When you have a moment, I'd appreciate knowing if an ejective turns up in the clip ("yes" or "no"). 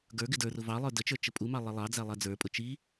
yes